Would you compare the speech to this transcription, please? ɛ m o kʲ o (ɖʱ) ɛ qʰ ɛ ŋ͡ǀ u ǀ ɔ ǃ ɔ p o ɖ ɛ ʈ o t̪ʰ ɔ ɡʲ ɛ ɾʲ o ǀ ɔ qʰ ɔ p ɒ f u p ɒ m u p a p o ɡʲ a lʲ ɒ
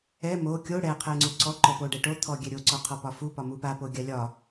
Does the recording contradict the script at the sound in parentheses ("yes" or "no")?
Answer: yes